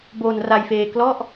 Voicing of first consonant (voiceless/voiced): voiced